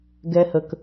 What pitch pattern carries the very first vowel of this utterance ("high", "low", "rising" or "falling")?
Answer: high